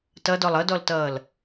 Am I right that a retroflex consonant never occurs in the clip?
yes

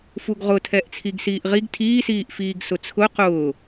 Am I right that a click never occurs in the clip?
yes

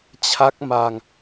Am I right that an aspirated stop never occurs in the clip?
no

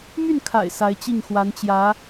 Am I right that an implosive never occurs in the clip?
yes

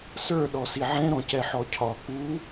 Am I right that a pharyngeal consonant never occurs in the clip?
no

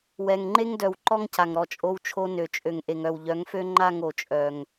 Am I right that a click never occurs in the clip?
no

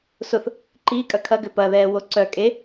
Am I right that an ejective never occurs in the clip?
no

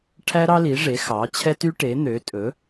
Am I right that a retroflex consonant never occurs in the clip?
no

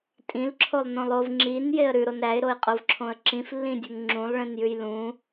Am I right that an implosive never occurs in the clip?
yes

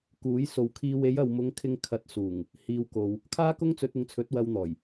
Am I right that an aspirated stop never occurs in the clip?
no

